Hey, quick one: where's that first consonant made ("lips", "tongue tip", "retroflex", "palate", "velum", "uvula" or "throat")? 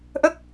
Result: throat